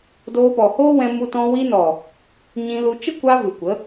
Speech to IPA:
d oː˧ p ɔ˨ h oː˦ w ɛ̃˧ m u˧ t ɔ̃˧ w i˧ n ɔ˨ | ɲ ĩ˧ l u˧ t͡ʃ ə˦ kʷ a˧ v ɨ˨ kʷ ə˨˦

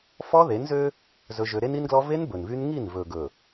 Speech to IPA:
f ɔ˦ ð e˨˦ n z ø˦ | z ɵ˦ ʒ ø˦ ɾ e˦ n i˦ n ɡ l ɔ˦ v e˦ n b ɵ˨ n v y˦ n ŋ i˦˨ n v ɵ˨ ɡ ɵ˨

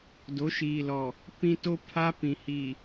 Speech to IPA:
d o˨˦ ʃ iː˨ l ɔ˨ | p ĩ˦ t o˦ pʰ a˦ p ĩ˨ h i˨

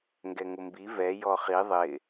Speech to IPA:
ŋ ɡ ɛ ŋ ʊ m b i v ɛ j ɔ χ i ðˤ ɪ

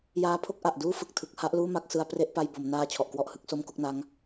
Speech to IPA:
j aː˧ pʰ o˦˥ k̚ ʔ a˨˩ ʔ d uː˥˩ f ɯ˨˩ k̚ tʰ ɯ˨˩ k̚ h a˥˩ ʔ l uː˥˩ m a˥˩ k̚ s ɯ˧ a̯ p r e˥˩ ʔ p a˧ j b o˩˦ m n aː˧ t͡ɕʰ ɔ˨˩ ʔ k w ɔ˥˩ ʔ h ɯ˦˥ k̚ s o˥˩ m k o˦˥ k̚ n a˦˥ ŋ

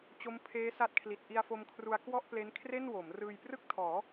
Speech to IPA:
t͡ɕ o˦˥ m pʰ eː˦˥ s a˦˥ t̚ kʰ l i˨˩ t̚ ʔ i˧ a̯ f o˧ m kʰ r u˧ a̯ k w ɔ˥˩ ʔ p l e˦˥ n kʰ r e˥˩ n w o˩˦ m r ɯː˧ j p r ɯ˥˩ k̚ tʰ ɔː˩˦

